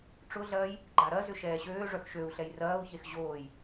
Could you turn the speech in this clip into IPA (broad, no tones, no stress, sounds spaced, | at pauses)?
ʈ͡ʂ ʊ ɮ ɐː j | ɡ͡ǃ a ɾ ɐ z ʏ ʃ ɛː ɕ øː ʐ œ x ʃ ø u̯ ɬ ɛ j r ɐː u̯ ç e x ʑ oː j